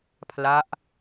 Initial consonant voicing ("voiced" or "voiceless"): voiceless